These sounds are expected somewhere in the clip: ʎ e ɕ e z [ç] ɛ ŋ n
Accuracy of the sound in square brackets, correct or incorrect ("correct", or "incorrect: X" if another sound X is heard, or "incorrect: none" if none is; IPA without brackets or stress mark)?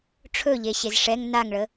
incorrect: ʂ